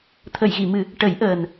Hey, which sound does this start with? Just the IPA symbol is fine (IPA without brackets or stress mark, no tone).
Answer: t̪ʰ